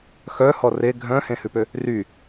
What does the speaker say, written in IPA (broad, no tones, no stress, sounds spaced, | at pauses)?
x œ h ɔ r e ɡʱ œ̃ h ẽ h ʉ p ø | r y